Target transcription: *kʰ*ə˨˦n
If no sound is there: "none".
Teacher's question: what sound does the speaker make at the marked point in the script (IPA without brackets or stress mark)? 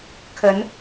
kʰ